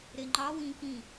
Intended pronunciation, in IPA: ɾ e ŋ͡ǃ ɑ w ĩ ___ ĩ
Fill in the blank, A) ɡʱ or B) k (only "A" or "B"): B